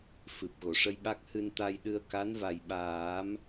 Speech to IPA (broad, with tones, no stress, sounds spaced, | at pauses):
f ɨ˨˩ p̚ ɣ o˨˩˨ ʂ ə˧ j ɓ a˦˥ k̚ h ɨ˧ n t̪ a˧ j ɗ ɨ˧ ə̯ k a˧˥ n v a˨˩ j ɓ aː˨˩˦ m